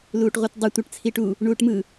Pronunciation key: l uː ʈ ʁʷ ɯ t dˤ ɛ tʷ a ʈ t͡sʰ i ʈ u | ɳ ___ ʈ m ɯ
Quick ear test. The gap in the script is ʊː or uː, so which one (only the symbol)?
uː